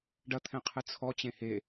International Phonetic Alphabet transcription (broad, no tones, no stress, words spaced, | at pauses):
ɖɐt̪ʰɛ̃ qʰɨt͡sʰɔt͡ɕẽ he